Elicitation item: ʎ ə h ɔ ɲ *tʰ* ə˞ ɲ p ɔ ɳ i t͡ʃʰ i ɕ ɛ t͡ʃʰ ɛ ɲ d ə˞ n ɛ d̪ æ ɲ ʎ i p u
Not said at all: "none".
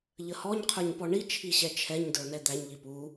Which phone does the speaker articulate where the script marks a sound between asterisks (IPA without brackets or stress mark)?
qʰ